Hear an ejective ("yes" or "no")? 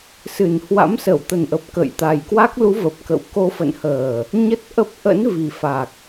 no